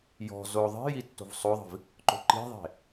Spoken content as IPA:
j ɔ̤ z o ðˤ i̤ j i tː o̤ v sˤ o ðˤ i̤ v | ǃ o̤ ǃ i̤ ðˤ e̤

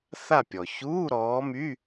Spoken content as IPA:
θ a˦˨ pʲ ɔ˩ ç uː˧˥˧ ɾ ɔː˨˦ m y˧˥˧

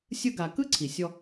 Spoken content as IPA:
sʲ ɯ˧ ɡ a˨ k ɯ˦ ǀʰ i˨ sʲ ɔ˧

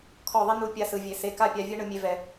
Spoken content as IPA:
kʰ ɔ˦˨ ðˤ i˦ n u˦˨ pʲ a˦ s ɯ˧ vʲ e˧ s e˧ k a˦ pʲ a˧ vʲ ɯ˦ ɳ ɯ˧ mʲ e˧ v ɛ˨

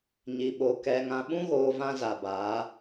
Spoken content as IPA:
ɲ i˨ ɓ o˨ k ɛ˨ ŋ ã˨ ɓ ũ˦ ɣ oː˨ v ã˦ z a˨ b aː˨˦

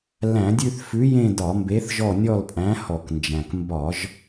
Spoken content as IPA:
l æ̃˧˩˧ dʲ ʉ˦˨ θ f ʉ˨˥ j ẽ˦˨ d ɒ˧˩˧ m b e˨˥ θ ʒ ɔ˦˨ nʲ ɔ˦˨ l pʼ æ̃˨˥ h ɔ˧˩˧ k n d͡ʒ æ̃˨˩ k m b ɒ˧˩˧ ʒ

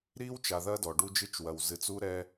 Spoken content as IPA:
ɾ iː˦ w t͡ʃ a˨ ð ɐ˦ d ɔ˨ ɖ u˦ d͡ʒ ɨ˦ t͡ʃ w ɐ˨ w z ɨ˨ t͡s u˦ ɾ ɛ˦

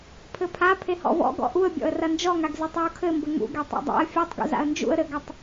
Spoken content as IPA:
pʰ ɘ pʰ a pʰ e h ɔ̰ v ɔ̰ ɡ ɔ̰ ʔ u ə̯ bʲ ɔ̰ ə̯ r ɐ n d͡ʒ ɔ ŋ a ɡ z e tˤ j u kʰ ɘ m b ɘ ŋ ṵ ɡ e tˤ a̰ dˤ a̰ ə̯ fʲ ɛ tˤ ɡ ṵ z a̰ ə̯ n d͡ʒ ṵ ə̯ ɾ ɘ ɡ ɐ tˤ

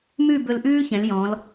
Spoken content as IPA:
m ʉ˥˧ b ɵ˧ l ʔ ʉː˥ ç ɛ̃˩˧ l j ɔ̃˩˧ l

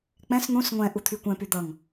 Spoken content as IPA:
k͡p ɛ̃ s n̪ ũ s ŋʷ ɛ̃ ʔ u t̪ʰ y kʷ ɛ̃ p y d̪ ʌ ŋ

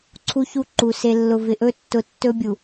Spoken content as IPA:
ǀʰ u˦ ç u˦ ǃ u˨ s e˨ lː ʊ˨ v ɪ˨ ʔ ɵ˦˨ tː ʊ˨˦ tː ɵ˦ bʲ u˨

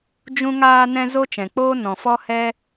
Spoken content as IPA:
d͡ʒ ũ˦ ŋ aː˧ n ɛ̃˧ z o˦ t͡ʃ ɛ̃˨ k͡p oː˦ n ɔ̃˨ f ɔ˦ h ɛ˦

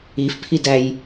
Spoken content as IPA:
i f pʰ i d æ j

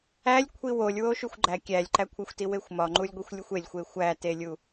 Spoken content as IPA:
æ lʲ kʷʰ i w o lʲ w o ʃ u xʷ ɡ͡ǃ æ kʲ æ lʲ ǃ æ kʷʰ æ xʷ t i w e xʷ m ɒ ŋ͡ǃ u lʲ ɡʷ i xʷ lʲ u xʷ e lʲ xʷ e xʷ æ t e lʲ u

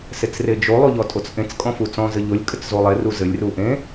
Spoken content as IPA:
s e t͡s r e d͡ʒ o lˠ o ʎ ɔ tʼ o t͡s ʔ ẽ t͡s kʼ ɔ̃ f u t͡s ɔ̃ z ɘ ʎ o lʲ kʼ ɘ t͡s z o lˠ e r u z ɘ lʲ r u ʔ ẽ

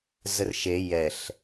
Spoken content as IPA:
z ə r ʃ e j ɛ ɬ

